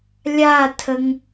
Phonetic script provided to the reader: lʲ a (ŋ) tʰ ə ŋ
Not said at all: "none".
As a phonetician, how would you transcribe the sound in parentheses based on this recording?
none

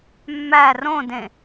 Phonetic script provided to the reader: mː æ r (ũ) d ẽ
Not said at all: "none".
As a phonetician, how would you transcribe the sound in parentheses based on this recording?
õ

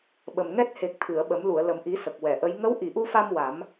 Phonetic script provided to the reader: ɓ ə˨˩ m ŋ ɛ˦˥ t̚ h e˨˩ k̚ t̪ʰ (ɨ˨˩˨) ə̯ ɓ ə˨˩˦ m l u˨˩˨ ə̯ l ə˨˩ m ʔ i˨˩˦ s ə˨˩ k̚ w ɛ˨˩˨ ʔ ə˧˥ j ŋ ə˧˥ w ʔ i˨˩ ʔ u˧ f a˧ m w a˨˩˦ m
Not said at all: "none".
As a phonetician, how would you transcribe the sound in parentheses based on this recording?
ɨ˨˩˨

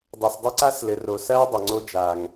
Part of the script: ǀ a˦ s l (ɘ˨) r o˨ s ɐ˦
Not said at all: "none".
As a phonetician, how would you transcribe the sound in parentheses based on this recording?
ɘ˨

